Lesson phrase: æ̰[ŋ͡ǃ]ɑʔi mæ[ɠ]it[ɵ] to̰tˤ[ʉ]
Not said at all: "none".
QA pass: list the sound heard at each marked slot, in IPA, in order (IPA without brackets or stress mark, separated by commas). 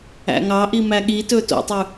ŋ, ɠ, ɵ, ʉ